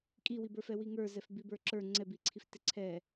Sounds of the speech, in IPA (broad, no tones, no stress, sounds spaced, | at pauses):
kʼ i w i b ə˞ f ɛ w i ŋ ə˞ z ɛ f b i b ə˞ ǁ ə˞ ŋ͡ǀ ɛ b i ǀʰ i f t ɪ ǀʰ ɛ